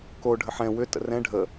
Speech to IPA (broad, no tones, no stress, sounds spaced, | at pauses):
k o ɖʱ ə ħ ɛ̃ w ʏ t ə̰ r ɛ̃ ɖʱ ə